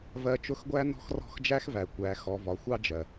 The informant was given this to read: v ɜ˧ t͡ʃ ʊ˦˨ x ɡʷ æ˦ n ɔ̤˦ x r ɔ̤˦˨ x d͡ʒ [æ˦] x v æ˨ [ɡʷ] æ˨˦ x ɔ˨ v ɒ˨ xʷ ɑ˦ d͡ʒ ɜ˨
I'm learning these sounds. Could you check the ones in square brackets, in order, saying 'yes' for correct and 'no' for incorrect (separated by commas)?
yes, no